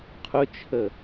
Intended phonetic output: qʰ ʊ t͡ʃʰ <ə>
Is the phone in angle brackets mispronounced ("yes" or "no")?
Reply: no